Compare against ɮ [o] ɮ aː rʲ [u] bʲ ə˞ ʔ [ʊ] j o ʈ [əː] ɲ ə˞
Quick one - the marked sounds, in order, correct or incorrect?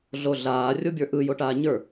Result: correct, incorrect, incorrect, incorrect

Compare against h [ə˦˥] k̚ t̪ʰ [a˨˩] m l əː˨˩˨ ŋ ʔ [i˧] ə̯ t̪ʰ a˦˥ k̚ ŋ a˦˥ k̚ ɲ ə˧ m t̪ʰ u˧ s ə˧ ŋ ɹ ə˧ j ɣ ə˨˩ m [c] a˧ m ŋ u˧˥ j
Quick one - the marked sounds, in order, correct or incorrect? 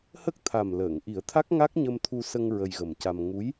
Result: correct, correct, incorrect, correct

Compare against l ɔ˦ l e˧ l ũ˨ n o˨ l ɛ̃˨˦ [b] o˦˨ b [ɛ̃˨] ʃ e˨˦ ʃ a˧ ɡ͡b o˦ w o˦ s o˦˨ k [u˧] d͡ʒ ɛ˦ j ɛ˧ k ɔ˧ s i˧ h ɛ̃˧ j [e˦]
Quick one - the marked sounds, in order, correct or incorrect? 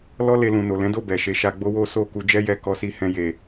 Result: incorrect, incorrect, correct, incorrect

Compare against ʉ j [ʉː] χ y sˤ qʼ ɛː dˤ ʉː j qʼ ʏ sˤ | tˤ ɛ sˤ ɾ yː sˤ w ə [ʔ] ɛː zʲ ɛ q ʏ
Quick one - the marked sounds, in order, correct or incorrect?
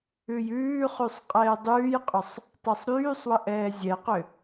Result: correct, correct

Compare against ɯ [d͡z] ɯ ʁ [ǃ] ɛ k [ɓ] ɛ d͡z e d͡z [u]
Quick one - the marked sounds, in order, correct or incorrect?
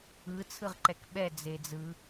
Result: incorrect, correct, correct, incorrect

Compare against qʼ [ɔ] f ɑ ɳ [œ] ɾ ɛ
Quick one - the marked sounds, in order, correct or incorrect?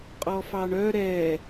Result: correct, correct

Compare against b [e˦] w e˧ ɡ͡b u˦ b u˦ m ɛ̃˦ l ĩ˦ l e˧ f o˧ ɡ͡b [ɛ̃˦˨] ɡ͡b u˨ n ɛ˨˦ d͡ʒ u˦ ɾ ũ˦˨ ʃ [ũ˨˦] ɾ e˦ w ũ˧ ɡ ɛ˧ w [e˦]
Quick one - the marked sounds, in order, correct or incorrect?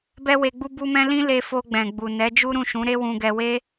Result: incorrect, incorrect, correct, correct

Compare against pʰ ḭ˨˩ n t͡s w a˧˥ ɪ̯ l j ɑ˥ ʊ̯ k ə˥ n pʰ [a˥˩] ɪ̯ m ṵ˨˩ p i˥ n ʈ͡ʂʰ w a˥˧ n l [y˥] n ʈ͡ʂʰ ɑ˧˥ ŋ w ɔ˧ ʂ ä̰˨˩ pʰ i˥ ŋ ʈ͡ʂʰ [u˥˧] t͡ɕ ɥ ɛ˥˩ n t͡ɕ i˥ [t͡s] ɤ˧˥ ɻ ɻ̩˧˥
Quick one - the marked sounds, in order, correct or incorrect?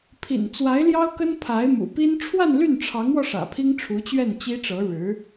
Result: incorrect, incorrect, incorrect, incorrect

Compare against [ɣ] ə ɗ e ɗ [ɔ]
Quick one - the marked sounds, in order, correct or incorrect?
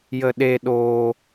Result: incorrect, incorrect

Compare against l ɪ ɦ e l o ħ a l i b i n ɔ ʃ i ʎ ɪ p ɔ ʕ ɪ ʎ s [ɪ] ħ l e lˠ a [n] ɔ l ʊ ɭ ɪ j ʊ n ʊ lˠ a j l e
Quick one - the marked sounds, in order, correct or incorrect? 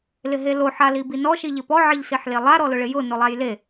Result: incorrect, incorrect

